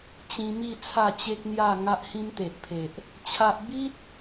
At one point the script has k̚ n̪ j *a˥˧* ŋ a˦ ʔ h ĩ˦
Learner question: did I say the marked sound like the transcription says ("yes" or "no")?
yes